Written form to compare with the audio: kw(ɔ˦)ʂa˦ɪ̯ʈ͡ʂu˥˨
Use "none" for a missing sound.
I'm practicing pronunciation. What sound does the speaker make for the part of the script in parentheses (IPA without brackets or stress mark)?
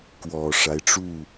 ɔ˨˩